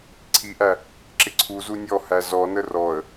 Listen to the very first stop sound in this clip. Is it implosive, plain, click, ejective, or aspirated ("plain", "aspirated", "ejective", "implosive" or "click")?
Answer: click